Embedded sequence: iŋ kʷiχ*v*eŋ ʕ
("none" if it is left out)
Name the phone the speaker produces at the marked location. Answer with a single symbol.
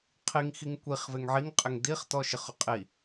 v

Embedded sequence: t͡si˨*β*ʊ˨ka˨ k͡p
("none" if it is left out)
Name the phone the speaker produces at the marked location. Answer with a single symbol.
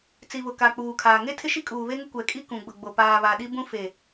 β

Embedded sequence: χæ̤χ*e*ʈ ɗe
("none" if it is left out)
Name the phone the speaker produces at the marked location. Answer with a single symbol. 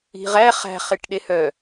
e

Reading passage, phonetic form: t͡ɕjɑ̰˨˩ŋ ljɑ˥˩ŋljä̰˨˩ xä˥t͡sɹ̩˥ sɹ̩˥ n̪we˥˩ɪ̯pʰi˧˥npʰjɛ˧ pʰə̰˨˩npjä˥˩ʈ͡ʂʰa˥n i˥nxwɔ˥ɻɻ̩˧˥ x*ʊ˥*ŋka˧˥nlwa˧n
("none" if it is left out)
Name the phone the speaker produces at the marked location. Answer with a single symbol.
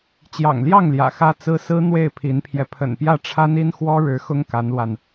ʊ˥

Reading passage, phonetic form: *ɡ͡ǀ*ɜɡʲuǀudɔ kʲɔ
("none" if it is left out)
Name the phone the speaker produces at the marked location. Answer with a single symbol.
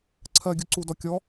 ǀʰ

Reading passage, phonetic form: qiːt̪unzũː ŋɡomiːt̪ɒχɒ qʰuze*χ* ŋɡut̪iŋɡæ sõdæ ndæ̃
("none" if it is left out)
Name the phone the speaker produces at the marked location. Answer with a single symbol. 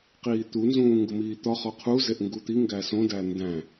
ʔ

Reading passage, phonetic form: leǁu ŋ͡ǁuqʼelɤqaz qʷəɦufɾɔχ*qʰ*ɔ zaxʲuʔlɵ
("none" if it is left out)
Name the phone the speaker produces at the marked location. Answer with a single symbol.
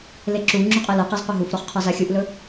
qʰ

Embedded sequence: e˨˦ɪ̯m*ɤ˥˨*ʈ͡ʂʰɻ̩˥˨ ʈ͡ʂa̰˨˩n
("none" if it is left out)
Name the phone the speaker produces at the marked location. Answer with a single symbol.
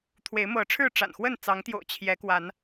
ɤ˨˦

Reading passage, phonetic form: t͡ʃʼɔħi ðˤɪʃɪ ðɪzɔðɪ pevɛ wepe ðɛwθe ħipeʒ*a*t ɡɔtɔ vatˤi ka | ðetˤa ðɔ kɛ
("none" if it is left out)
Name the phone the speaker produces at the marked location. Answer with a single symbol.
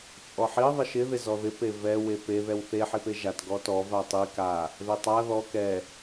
a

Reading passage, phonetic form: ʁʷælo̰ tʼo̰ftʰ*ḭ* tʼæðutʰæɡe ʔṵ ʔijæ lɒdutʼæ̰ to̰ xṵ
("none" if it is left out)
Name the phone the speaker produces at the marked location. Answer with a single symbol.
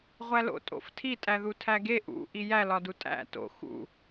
i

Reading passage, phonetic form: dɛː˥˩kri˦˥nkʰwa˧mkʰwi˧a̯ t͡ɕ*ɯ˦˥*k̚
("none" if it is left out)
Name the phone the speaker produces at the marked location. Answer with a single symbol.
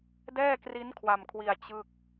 ɯ˥˩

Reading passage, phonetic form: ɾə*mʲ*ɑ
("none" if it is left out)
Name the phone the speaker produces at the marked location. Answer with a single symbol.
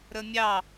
mʲ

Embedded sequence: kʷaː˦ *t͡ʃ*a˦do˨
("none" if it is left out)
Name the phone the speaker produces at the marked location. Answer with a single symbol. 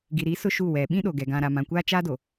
t͡ʃ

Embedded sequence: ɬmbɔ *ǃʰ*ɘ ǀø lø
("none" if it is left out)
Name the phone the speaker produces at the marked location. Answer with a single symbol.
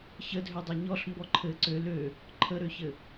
ǃʰ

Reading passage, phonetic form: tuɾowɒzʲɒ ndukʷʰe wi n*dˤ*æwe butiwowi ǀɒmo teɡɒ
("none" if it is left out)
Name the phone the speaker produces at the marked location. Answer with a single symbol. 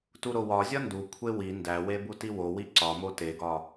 d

